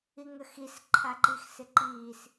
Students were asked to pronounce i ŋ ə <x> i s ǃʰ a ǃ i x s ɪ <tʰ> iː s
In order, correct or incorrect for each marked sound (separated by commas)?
correct, incorrect